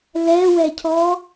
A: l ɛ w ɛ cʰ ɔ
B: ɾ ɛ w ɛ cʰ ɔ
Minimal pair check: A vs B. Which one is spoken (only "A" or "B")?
A